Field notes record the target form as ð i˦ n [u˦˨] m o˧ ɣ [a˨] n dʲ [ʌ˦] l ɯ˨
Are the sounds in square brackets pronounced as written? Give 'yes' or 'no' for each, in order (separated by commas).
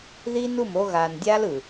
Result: yes, yes, no